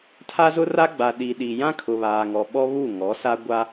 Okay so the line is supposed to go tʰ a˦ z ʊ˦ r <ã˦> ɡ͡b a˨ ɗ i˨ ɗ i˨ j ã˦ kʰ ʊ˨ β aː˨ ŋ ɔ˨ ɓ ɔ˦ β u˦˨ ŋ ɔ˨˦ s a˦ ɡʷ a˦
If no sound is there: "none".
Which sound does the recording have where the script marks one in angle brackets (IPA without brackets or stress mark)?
a˦